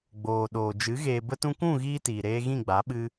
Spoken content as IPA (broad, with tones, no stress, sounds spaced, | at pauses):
ɡ͡b oː˨ ɗ oː˨ d͡ʒ ɨ˨˦ ɣ eː˨ b ə˧ t ũ˧ k ũ˦˨ ɣ iː˦ t iː˨ ɾ eː˧ ɣ ĩ˦˨ ɡ͡b a˨˦ ɓ ɨ˧